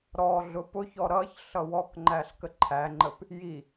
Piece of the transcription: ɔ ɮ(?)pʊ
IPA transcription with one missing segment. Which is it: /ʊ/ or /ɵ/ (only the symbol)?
ʊ